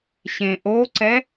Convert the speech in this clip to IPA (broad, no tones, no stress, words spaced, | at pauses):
ɕẽʔoǀɛ